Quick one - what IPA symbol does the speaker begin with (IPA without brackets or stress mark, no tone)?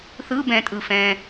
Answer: θ